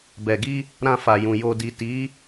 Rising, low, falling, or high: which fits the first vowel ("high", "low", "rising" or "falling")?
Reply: low